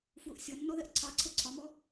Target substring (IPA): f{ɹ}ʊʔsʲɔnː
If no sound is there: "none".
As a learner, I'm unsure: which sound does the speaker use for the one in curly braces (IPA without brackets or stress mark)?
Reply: w